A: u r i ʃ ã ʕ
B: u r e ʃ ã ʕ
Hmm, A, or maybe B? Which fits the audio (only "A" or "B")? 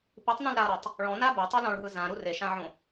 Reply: B